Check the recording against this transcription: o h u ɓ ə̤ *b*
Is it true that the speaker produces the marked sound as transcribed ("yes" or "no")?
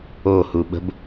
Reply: yes